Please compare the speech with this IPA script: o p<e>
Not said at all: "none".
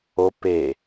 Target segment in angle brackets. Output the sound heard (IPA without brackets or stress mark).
e